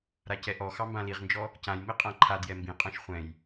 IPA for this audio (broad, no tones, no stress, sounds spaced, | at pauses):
ɾ a c ɛ ʔ ɔ x ɑ m b ã l i ʁ n d͡ʒ ɔ | c ã j m i qʼ ã ǃʰ a d j ɛ m b ĩ qʼ ɑ̃ ʃ χʷ ɛ̃ j